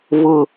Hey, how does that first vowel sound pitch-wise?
low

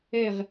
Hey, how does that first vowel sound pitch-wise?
falling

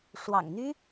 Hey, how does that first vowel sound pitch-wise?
low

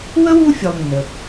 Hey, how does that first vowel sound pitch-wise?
high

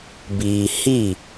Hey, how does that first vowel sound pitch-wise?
low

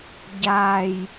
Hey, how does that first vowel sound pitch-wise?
low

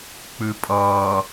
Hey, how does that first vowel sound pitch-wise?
low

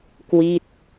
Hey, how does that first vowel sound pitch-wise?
falling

